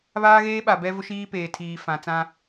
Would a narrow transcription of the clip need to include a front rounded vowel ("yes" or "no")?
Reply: no